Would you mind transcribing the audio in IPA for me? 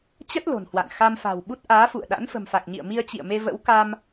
t͡ɕə˦˥t̚ lo̤˨˩nhwa̰˧˨n xa˧mfa̤˨˩wɓu˦˥t̚ ʔaː˨˦fṵ˧˨ə̯ɗa̰˧˥n fə̤˨˩mfa˨˩k̚ɲḭ˧˨ə̯ mi˧ə̯t͡ɕḭ˧˨ə̯me˧ və̰˧˥wka˧m

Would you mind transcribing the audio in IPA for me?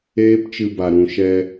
eː˦pt͡ʃɨ˧ba˨ ɾũ˨ ʃɛ˧

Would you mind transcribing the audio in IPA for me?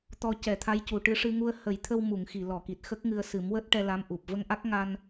t̪ɔ˧cɛ˨˩˦t̪ʰa˧˥j cu˨˩ʈɨ˧ʂɨ˧ŋu˧ə̯ hə˨˩˦jt̪ʰə˧wmu˨˩˨ŋ xi˨˩˨lɔ˨˩˨ki˨˩t̚ xə˦˥k̚ŋɨ˧ə̯ sɨ˨˩˦mwəː˦˥t̚ʈɛ˧ la˧˥mʔu˨˩p̚ və˧ŋʔa˦˥k̚ ŋa˧n

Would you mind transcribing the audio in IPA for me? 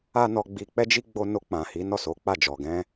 a˦nɔ˧ɡ͡bi˧ k͡pɛ˦d͡ʒi˦ ɡ͡bo˧no˧ k͡pã˨hi˨˦ nɔ˦˨so˨˦k͡pa˦˨ d͡ʒɔ˨ɡɛ̃˧

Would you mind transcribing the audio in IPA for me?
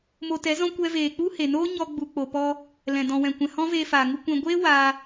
mo˧tɛ˨˦zɔ̃˦ kʷɛ˧veː˨ k͡pu˦he˨noː˦ ɲɔ˧ɡ͡bu˨ k͡po˨pɔ˧ | lɛ̃˨ dɔ̃˨wɛ̃˨kʷɛ̃˨ hɔ̃˦veː˧faː˨ŋu˧ kʷɛ̃˨ ɡʷeː˦ waː˧

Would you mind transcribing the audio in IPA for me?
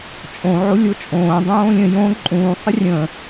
t͡ʃʼõ ʕolʲot͡ʃʼõː dˤõːlʲə̃ jõ ǃʼũː sˤərʲə̃

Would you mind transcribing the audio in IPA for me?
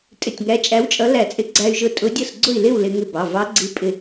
tʼɪ˧˩tʲŋæ˧˥ t͡ʃʼæ˧˥wt͡ʃʼʌ˧˥læ˧˩t͡sʼɪ˧˥ ɡ͡ǀæ˧y̯ʒʊ˧˩ tʼʊ˧˥dʲʌ˥˨s ɡ͡ǀʊ˥˨i̯lɪ˥˨w lɪ˧ŋɪ˧˩ bɑ˩˧˩ vɑ˧˥ɡ͡ǀi˧˥ pʼɪ˧˩

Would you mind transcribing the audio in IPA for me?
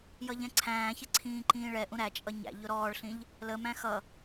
jʌʎɛ̃ǀʰæ̃ːçɪ ǀʰĩːǃĩːɭɛʔũ ɾæt͡ʃʼʌ ɲæ̰ʎʊ ɾɔːɭɬĩʎ | ləmæ̃ xʌ

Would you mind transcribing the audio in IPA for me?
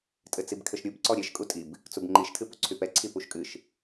tʼɘt͡sibkʰɘʃɾʲub ǀɔɾʲɛʃ kʼutʼib | t͡subŋ͡ǃiʃ tʰɨpuǀʰypɛ ǀʰipuʃkʼɨʃ

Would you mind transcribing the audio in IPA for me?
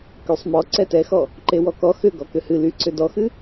kysˤmɔ ǀɛtɛxɔ | ǃewɔkɔ xʏ ɡɔkʏhɨ lyǀʏ dɔxɨ

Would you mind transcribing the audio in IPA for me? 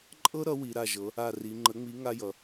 ǃʼɤ˥ɾʌ˨˥wi˩˧ ɾa˧˩ʒɤ˩˧ | a˧˩ri˩˧ ŋ͡ǃə˨˥ŋ͡mi˨˥ ŋa˥jʌ˩˧

